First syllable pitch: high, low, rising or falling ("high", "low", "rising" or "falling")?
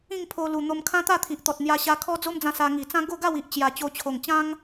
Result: falling